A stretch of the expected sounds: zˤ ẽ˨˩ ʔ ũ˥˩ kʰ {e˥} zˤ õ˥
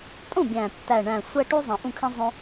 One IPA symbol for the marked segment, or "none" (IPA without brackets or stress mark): ẽ˥